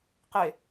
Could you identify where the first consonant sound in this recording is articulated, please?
uvular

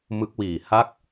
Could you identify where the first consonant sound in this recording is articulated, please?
labial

